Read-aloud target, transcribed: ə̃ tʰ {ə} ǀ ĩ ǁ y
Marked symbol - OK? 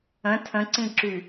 no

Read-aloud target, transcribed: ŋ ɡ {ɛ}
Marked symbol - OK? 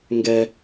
yes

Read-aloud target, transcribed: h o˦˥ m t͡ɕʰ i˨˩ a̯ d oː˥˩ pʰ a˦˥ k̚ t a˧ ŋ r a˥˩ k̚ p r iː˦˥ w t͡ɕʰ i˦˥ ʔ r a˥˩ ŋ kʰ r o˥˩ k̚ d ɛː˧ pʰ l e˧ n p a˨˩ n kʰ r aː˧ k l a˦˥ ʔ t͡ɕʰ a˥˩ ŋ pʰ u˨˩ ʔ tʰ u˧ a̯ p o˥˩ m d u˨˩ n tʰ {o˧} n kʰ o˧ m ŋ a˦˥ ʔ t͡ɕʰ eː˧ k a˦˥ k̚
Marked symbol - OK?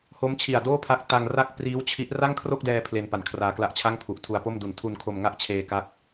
no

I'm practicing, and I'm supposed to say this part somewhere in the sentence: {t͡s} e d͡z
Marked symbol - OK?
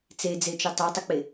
yes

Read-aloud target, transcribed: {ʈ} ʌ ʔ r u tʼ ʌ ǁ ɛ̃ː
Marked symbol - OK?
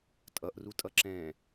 no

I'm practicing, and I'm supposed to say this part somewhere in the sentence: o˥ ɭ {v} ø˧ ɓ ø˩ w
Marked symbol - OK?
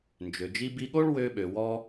no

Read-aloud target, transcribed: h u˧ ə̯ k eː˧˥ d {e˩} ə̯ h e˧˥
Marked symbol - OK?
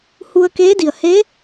no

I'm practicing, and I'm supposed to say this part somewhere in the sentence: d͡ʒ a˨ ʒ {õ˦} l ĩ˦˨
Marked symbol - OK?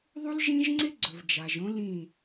yes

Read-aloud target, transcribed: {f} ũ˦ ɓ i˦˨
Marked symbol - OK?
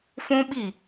yes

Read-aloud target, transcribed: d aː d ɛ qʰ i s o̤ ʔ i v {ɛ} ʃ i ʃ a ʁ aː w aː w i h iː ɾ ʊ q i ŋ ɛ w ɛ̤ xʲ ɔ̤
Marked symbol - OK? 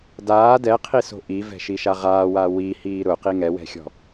no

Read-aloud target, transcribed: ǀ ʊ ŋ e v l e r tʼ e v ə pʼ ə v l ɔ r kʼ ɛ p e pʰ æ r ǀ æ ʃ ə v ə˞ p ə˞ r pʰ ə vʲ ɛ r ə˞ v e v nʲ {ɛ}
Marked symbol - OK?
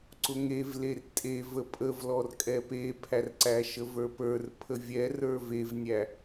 no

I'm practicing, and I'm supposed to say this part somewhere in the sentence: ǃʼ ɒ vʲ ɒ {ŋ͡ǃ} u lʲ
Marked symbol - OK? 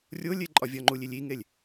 yes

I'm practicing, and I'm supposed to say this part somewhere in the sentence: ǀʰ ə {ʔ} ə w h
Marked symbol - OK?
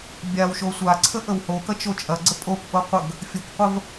yes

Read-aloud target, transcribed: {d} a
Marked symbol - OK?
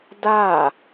yes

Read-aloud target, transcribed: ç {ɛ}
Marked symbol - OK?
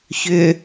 no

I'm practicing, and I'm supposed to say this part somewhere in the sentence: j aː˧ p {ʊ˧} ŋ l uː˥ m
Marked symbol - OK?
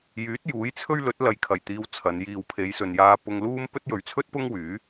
yes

